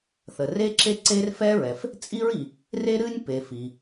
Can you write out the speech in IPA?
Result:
θə˩re˥ǁe˥ ǀe˥r fɛ˥ɹɛ˩f | t͡sʼi˥ɹi˩ | re˥ɾɨ˥nʲpe˩ fi˩

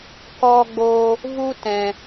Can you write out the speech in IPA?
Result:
kɔ˧ɡ͡bo˧ | vu˦tɛ̃˧

